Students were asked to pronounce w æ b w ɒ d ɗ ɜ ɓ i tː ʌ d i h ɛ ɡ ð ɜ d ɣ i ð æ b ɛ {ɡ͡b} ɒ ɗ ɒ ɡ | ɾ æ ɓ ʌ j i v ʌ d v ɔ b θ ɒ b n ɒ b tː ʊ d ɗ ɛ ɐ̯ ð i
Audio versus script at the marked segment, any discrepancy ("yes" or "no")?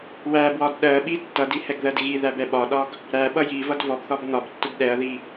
yes